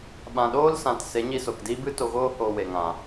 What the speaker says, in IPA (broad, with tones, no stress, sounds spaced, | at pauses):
ɓ ã˨ ɗ oː˦ l s ã˨ t s e˨˦ ɲ i˧ s o˨ k d iː˦ b ɨ˦ t o˧ ɣ oː˦ h oː˧ w e˨ ŋ ã˨